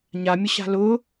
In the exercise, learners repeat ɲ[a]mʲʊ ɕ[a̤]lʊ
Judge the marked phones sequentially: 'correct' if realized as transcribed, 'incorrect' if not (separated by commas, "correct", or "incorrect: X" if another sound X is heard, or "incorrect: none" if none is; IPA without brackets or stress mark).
correct, correct